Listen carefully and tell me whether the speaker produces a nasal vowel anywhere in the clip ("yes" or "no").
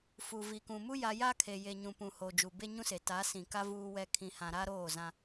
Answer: yes